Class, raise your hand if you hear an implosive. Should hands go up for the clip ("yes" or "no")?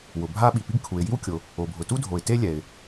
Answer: yes